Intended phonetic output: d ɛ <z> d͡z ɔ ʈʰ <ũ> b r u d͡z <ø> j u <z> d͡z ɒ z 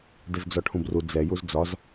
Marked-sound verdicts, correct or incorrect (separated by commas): correct, correct, incorrect, correct